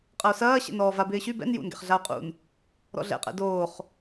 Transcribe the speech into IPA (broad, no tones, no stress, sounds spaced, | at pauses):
qʼ ɐ o̯ s ɐː ɕ ɛ̰ n ɔː v a b ɪː ɕ y b ɛ̰ n j ṵ n ɡ ɛ̰ χ ɮ a o̯ qʼ ṵ n | ɾ ɔ̰ ɮ ɛ̰ qʼ ɛ̰ d oː χ